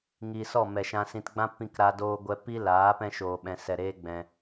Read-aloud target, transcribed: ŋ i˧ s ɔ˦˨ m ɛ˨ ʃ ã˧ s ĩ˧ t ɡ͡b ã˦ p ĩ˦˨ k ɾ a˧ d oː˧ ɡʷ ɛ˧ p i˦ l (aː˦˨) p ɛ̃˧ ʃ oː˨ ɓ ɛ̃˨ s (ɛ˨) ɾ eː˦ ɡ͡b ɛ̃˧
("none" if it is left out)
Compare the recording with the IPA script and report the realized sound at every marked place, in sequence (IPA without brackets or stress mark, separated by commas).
aː˨˦, ɛ˨